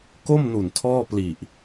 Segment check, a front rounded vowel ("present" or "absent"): absent